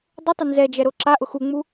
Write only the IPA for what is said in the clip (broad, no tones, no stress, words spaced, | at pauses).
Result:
dˤʊtˤɪ nzɛd͡ʒɛɾo ǁaʔʊ xuŋ͡mu